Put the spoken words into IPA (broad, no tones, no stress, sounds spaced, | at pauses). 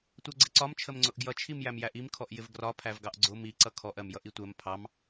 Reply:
tʷ ɜ ɡ͡ǀ ɪ ǀ ɒ m t͡ʃʰ ə m ŋ͡ǀ ʊ ʔ ɡ j ʌ t͡ʃʰ i m j æ m j æ ʔ i m kʰ ɔ ʔ j ɪ v ɡ r ɒ pʰ æ v ɡ ɑ ʔ ɡ͡ǀ ʊ m i ǀ ʌ kʰ ɔ ʔ ɜ m j ʌ ʔ i tʷ ɜ m pʰ ɑ m